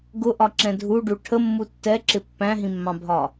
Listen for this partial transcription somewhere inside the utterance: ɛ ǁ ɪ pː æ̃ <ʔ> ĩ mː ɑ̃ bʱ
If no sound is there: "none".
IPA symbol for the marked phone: ɦ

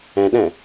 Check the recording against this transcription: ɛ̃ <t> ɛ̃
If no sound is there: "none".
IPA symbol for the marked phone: ɗ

